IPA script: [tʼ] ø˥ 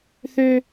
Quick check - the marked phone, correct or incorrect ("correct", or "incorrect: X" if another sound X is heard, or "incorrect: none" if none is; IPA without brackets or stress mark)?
incorrect: θ